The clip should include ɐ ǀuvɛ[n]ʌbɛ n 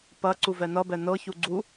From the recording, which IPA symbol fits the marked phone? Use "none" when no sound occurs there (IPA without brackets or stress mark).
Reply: n